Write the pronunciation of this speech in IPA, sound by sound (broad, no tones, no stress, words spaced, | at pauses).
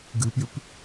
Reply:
ɡɨpjʉp